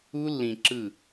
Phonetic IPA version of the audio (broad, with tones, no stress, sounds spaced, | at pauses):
u˦ lː ĩ˨ ǁ ɯ˦˨